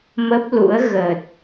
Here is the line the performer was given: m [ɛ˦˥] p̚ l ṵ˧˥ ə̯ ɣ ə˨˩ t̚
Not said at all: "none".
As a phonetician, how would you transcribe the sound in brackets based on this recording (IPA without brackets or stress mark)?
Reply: ə˦˥